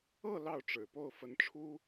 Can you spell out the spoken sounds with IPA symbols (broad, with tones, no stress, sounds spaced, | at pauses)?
ɤ˥˧ l ɑ˥˩ ʊ̯ ʈ͡ʂ ɻ̩˨˩ p o˥˩ ʊ̯ f ə˧˥ n ʈ͡ʂʰ u˥